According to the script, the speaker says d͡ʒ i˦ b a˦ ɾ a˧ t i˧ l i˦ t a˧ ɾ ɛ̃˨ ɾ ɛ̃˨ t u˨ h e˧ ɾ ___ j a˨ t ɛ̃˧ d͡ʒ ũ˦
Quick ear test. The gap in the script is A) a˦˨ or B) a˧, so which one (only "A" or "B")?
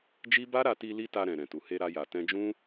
B